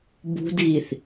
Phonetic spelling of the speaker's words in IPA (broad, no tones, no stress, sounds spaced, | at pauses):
b ṳ d ɣ i θ